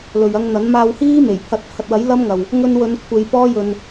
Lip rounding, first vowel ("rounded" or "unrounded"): rounded